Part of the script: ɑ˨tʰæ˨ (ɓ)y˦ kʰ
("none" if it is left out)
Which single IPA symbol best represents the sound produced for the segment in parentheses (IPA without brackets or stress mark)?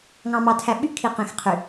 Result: ɓ